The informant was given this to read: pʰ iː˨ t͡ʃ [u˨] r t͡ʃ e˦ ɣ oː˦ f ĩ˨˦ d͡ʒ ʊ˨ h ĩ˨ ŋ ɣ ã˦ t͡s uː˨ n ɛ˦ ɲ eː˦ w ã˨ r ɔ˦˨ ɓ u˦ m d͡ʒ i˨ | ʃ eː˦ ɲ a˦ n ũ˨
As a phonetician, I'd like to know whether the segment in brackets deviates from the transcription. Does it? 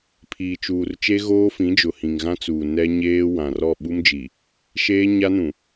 yes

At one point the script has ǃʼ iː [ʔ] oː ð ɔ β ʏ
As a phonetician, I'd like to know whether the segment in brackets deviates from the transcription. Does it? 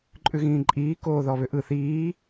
yes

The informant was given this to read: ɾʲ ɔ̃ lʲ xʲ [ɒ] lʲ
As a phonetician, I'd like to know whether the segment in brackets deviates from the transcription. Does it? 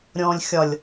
no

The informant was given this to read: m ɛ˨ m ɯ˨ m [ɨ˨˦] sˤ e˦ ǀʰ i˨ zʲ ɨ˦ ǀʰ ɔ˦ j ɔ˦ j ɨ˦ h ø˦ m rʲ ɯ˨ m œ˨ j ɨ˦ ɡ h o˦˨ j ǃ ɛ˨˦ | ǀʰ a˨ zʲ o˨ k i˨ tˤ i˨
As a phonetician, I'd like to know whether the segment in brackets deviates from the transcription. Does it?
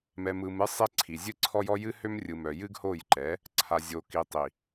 no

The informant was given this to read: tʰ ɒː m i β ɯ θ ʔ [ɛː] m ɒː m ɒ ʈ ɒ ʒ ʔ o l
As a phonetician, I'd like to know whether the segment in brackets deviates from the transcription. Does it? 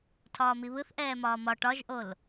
no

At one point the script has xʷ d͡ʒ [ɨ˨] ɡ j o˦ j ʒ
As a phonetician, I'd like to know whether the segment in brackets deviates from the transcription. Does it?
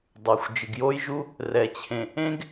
no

